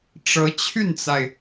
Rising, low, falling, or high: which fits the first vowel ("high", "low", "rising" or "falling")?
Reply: rising